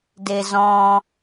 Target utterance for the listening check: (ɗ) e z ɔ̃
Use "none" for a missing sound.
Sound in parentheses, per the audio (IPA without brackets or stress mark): d